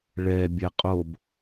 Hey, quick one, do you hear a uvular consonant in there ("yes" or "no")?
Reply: yes